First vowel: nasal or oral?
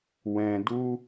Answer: nasal